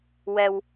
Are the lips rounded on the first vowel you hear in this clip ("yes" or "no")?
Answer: no